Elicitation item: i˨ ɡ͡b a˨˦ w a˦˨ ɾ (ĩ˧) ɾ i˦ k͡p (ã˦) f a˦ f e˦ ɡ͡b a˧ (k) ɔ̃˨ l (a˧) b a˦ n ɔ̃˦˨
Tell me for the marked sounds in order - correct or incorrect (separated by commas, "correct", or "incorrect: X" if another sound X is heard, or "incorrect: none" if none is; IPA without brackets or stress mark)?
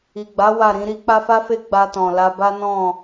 incorrect: ĩ˨˦, incorrect: a˦, incorrect: t, correct